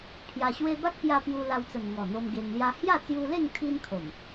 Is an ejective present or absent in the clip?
absent